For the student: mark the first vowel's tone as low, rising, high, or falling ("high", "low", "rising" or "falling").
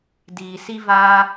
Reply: low